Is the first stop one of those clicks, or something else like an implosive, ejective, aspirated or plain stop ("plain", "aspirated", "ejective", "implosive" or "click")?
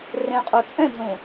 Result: ejective